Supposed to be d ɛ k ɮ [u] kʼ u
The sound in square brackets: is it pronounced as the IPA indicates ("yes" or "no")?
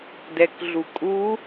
yes